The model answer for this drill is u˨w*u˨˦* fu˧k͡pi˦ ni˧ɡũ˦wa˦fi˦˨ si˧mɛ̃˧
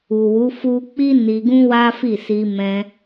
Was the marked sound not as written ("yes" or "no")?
no